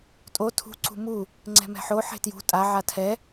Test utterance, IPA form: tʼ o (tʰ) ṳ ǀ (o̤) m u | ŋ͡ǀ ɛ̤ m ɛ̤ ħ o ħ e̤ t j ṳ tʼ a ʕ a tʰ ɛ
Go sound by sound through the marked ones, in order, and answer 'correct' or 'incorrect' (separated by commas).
correct, incorrect